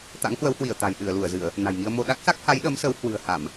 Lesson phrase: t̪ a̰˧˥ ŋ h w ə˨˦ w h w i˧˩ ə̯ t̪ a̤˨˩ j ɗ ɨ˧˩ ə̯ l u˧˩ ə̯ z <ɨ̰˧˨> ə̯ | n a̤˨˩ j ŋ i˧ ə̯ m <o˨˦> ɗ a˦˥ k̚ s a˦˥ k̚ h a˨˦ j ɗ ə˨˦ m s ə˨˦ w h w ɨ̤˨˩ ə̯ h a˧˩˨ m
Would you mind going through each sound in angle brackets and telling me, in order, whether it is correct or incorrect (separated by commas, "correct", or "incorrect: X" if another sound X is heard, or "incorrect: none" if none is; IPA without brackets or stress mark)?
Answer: incorrect: ɨ˧˩˨, incorrect: o˧